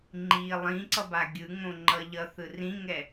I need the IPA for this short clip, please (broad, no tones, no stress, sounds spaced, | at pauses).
ŋ͡ǃ i lˠ ĩ ǀ ʌ b a ɡʲ ɯ ŋ õ ŋ͡ǃ ʌ ʎ ʌ θ ɯ r ĩ ŋ ɛ